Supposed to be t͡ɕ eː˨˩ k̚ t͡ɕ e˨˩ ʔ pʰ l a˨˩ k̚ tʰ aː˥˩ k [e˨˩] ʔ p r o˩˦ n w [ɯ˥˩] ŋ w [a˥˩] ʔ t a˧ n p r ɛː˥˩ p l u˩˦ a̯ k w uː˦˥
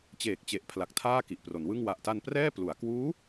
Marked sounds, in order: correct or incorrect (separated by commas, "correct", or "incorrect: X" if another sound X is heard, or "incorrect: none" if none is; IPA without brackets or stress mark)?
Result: incorrect: i˨˩, correct, incorrect: a˨˩